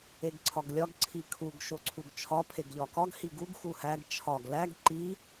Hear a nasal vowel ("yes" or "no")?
no